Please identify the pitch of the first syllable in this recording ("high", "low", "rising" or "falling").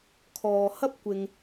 low